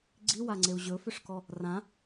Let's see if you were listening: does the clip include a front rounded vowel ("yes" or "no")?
yes